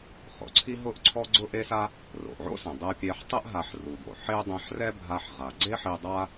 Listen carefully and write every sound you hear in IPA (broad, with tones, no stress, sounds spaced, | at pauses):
χ o̰˩ ǀʰ i˥ ɦ ʊ˥ ʔ ǀʰ ɔ˥ ɡ͡ǀ ʊ˥ ʔ e˥ s a˥ | r o̰˩ ʔ ʕ o̰˥ s ɛ̃˩ dˤ ɛ˧ pʲ ɛ˧ ħ tˤ ɛ˥ ʔ ɦ a˧ ħ r u˩ ɡ o̰˩ ħ e˥ dˤ ɛ̃˧ ħ r ɛ˥ bʱ a˧ ħ ʁ a˩ ɡ͡ǀ e˥ ħ e˧ dˤ a˥